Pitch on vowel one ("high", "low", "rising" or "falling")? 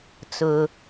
high